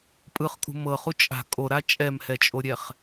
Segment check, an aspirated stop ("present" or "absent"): absent